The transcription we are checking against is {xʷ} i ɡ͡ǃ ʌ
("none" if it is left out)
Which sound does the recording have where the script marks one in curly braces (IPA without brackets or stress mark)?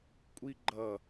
kʷʼ